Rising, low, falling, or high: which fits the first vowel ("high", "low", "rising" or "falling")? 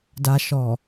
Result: low